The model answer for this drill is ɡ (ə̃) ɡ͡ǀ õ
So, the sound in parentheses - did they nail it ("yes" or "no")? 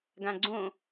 no